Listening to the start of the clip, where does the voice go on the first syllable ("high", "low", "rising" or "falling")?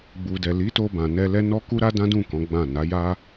low